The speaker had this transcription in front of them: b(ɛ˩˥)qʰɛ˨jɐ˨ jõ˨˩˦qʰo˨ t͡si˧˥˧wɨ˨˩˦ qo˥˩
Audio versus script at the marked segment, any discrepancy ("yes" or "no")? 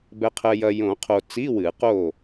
yes